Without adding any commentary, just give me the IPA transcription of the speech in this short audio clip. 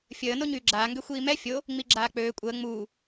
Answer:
fʲ əː n o ɲ yː ɡ͡ǁ aː ŋ ɡ ø xʷ iː m ɛ fʲ o | ŋ͡m i ɡ͡ǁ aː k͡p øː kʷʼ əː ŋ͡m uː

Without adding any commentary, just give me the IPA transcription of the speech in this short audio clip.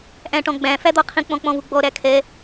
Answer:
ʔ æ̃ ʈ ɔ̃ ɡ͡b æ̃ f æ d̪ ɔ qʰ ĩ k͡p ɔ̃ k͡p ɔ̃ v u ɡ͡b ɔ ɾ æ kʰ ɛ

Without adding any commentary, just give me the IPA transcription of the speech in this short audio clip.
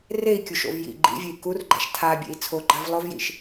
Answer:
r e i̯ kʲ u ʃ o̰ v j ḭ ɡ͡ǃ ḭ vʲ e i̯ k u r ɡ͡ǃ a̰ ʃ tʰ a bʲ ḛ i̯ t͡sʰ o ɡ͡ǃ a v lˠ o v j ḭ ʃ

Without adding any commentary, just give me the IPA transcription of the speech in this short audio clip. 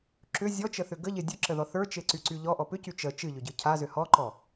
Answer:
ǁ ʏ zʲ ɔ t͡ʃ ə θ ʏ ɡ ə ʎ e dʲ ɨ ǁ ə ð ɔ θ ə˞ t͡ʃ e ǀ y ǀ y ʎ ɔ ʔ ɔ p ʏ c y t͡ʃ ə t͡ʃ ɨ ʎ ʏ ɟ ɨ cʰ a z ʏ h ɔ ǃ ɔ

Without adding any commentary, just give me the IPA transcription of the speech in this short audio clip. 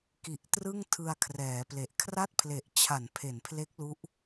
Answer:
k i˨˩ ʔ t r ɯ˥˩ ŋ tʰ ɯ˧ a̯ kʰ r ɛː˩˦ p l e˨˩ ʔ kʰ r a˥˩ t̚ pʰ l e˨˩ ʔ t͡ɕʰ a˩˦ n pʰ e˩˦ n pʰ l e˦˥ k̚ l u˦˥ ʔ

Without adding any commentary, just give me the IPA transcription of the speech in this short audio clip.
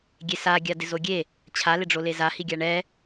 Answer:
ɡʲ e s a ɡʲ a d ɪ z o ɡʲ e | t͡ɕʰ a l ɪ ɖ͡ʐ o l e z a h i ɡʲ a ɳ ɛ

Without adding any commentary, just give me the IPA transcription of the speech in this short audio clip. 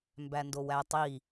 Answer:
m b æ n d o w æ tˤ i

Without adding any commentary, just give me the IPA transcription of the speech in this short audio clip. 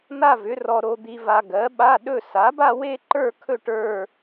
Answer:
n̪ a˥˧ v ʏ˨˥ r ɔ˧ ɾ o˧ d̪ i˧ v a˧ ɡ ɜ˨˥ ɓ a˧˥˧ ɗ ɵ˥˧ s a˨˥ b a˥˧ w e˥˧ ǃ ə˞˥˧ kʰ ɵ˥˧ ʈ ə˞˥˧

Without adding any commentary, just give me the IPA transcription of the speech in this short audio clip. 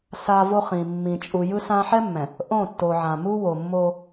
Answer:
s a˦ v o˦ χ ĩ˨ mː ĩ˨ t͡ʃʼ u˨ j ɯ˦ s ã˦ ħ ɛ˦ mː ɛ̃˨ | ʔ õ˦˨ tː o˨ ʕ ã˨ m u˦ w o˨ mː o˦

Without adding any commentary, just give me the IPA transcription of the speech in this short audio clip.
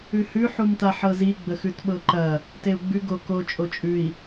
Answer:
ʉ h ʉ ħ u m t̪ a ħ ɤ z i ɡ͡b ə x ʉ t ɓ ɤ ǃ ɐ | t e u̯ ɡ͡b ʉ ɡ o k o t͡ʃʼ o t͡ʃʼ ʉ i̯

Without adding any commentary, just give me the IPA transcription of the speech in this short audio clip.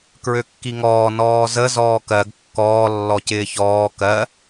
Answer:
k ɹ ø kː i ŋ ɔː n ɔː z ə z ɔː k ɜ ɡ kː ɔː lː ɔ c ɪː ç ɔː k ɜ

